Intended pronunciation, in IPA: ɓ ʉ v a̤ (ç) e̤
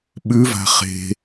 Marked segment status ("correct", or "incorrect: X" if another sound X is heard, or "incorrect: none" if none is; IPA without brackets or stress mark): incorrect: χ